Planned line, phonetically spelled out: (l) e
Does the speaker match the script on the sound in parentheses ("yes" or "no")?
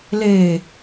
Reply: yes